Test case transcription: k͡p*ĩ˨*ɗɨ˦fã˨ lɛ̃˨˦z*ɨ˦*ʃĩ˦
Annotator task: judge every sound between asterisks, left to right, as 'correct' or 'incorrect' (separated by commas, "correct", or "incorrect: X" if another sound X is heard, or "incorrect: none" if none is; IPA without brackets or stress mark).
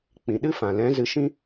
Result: correct, incorrect: ɨ˧